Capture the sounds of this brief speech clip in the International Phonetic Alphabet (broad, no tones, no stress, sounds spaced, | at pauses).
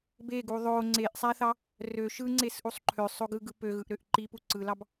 b e ɡ u ðˤ o ŋ͡ǀ e ʔ sˤ æ θ ɑ | r ø ʃ ɯ ŋ͡ǀ e s ʔ u sˤ ǃʰ ø sˤ o ɡ ɯ ɡ ɯ p ø ɣ ɯ ʔ ɾ ø ʔ ǃ i p u ǀ ɯ l ɑ b